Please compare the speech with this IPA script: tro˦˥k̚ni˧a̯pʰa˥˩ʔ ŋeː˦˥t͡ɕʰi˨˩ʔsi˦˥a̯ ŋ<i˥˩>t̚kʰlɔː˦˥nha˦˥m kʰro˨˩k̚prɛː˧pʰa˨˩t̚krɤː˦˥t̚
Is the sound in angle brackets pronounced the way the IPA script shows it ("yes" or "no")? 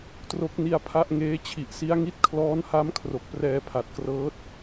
no